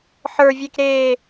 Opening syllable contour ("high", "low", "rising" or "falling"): low